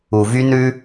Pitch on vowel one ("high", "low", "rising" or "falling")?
low